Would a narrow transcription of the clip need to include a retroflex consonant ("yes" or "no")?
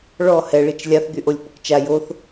yes